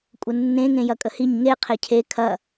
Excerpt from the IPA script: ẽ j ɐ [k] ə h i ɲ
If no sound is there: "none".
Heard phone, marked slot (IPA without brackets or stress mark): kʼ